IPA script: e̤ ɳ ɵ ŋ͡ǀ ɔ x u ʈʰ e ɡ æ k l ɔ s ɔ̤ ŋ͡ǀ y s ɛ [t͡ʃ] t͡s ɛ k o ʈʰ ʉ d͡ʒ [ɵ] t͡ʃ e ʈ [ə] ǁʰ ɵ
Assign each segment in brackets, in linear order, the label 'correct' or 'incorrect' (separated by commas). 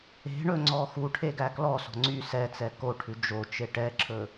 incorrect, incorrect, incorrect